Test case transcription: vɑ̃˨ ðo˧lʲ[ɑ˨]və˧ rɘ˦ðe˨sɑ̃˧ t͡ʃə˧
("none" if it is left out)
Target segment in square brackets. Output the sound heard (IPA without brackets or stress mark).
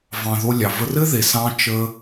ɑ˨